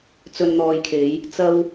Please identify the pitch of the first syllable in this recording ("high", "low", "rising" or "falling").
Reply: low